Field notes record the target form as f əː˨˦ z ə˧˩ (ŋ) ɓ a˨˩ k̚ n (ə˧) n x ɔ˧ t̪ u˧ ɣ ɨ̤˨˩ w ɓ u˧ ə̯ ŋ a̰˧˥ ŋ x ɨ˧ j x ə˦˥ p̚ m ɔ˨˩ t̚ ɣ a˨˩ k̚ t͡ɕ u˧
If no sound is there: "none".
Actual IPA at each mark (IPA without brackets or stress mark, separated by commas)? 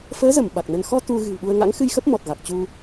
m, ə˧